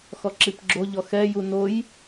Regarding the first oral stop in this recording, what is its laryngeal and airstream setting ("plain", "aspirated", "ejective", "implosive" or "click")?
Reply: click